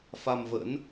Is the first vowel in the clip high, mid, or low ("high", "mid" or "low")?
low